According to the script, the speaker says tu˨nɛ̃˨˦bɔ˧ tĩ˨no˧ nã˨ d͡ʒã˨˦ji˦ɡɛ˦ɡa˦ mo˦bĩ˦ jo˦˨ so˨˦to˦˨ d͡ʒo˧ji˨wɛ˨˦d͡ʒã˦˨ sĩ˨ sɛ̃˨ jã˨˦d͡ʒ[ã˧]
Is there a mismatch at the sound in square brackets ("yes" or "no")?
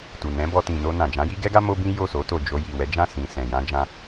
no